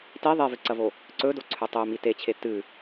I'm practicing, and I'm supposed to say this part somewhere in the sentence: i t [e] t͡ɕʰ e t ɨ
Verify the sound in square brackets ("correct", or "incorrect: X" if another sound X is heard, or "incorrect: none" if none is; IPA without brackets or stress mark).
correct